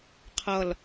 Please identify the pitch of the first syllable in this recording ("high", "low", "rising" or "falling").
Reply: low